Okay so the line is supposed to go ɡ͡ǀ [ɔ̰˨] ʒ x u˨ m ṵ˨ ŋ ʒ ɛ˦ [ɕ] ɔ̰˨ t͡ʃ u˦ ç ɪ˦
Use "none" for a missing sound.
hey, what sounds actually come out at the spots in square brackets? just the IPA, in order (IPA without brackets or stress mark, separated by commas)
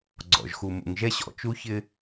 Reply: ɔ̰˨, ɕ